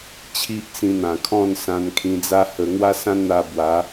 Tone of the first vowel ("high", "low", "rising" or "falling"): high